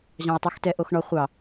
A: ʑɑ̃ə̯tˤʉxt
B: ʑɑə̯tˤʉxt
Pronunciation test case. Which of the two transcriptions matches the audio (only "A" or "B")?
A